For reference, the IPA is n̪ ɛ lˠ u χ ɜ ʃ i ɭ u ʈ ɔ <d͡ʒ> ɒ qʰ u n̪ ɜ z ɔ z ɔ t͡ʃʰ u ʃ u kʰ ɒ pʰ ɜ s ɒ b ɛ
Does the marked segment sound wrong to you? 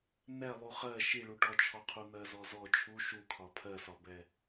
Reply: yes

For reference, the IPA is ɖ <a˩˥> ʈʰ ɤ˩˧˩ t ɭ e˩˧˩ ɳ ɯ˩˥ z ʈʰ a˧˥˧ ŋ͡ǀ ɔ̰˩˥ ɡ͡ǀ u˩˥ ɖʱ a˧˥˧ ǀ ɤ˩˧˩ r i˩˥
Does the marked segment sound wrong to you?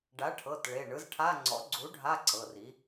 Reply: no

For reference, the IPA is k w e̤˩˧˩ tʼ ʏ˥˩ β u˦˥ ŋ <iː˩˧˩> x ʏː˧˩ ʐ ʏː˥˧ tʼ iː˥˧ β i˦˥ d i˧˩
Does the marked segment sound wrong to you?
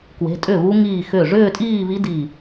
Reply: yes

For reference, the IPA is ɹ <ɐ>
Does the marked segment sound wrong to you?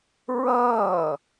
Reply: yes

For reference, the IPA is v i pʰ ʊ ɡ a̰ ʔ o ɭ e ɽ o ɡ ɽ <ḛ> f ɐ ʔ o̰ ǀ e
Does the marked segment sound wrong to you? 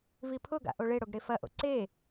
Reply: yes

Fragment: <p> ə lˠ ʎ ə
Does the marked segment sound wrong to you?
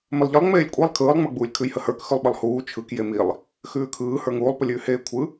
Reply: yes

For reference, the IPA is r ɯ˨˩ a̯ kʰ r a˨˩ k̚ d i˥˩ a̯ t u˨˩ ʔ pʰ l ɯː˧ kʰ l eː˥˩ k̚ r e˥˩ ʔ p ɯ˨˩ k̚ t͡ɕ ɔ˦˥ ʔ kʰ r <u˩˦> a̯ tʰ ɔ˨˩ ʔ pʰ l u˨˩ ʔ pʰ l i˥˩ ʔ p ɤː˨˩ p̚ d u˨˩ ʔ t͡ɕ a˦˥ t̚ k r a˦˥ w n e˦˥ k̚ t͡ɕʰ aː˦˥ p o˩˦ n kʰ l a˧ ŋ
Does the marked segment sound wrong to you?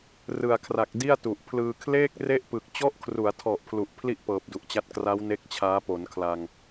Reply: no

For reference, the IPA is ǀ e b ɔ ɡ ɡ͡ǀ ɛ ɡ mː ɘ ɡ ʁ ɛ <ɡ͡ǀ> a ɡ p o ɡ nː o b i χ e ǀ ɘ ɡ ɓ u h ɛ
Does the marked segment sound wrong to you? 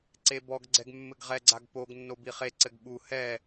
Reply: no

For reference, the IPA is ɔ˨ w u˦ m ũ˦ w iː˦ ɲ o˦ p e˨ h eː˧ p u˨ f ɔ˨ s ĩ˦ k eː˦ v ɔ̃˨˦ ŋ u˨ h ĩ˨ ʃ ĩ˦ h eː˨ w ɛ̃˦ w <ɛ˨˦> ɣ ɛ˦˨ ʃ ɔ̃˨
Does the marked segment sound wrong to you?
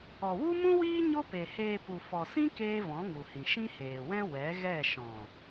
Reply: no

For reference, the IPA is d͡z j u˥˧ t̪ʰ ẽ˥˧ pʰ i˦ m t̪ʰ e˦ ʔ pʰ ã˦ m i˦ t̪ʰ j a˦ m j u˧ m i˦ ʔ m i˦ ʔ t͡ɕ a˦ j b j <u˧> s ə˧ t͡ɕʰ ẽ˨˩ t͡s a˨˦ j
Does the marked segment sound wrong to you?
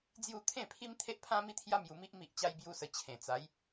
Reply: yes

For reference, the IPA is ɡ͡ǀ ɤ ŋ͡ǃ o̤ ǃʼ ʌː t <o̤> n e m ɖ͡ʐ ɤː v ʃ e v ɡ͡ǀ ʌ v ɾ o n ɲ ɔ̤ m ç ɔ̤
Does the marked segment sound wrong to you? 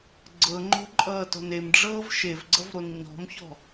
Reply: yes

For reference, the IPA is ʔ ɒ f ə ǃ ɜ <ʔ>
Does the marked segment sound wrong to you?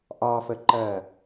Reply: yes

